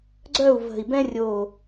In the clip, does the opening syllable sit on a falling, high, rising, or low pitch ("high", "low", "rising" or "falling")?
falling